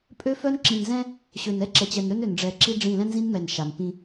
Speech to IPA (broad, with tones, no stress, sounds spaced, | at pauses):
pʼ ø˦ f œ˦ n ǁ ĩ˨ n z ɛ̃˦ | ɕ ø˨ n ɛ˦ ǁ ɛ˨ t͡ɕ ɛ˨ n ɾ ø˦ n ø˨ n ɖ͡ʐ ɛ˨ ǁ i˦ ɖ͡ʐ ĩ˦˨ l ɛ̃˦ n z ĩ˦ n m ɛ˨ n ʃ a˨ n p ĩ˦